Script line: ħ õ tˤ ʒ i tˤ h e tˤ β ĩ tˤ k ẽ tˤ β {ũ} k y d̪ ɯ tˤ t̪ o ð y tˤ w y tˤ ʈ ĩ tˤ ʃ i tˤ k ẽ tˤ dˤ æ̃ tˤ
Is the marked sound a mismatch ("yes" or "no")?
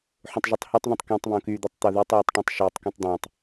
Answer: yes